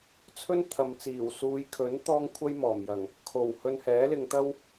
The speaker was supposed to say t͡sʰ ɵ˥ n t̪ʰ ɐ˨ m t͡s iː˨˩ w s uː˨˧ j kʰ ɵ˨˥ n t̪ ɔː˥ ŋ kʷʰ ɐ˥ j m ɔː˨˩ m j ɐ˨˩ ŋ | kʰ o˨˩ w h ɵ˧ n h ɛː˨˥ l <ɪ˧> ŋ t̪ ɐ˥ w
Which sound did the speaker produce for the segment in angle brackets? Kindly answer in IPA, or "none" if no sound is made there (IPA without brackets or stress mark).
ɪ˧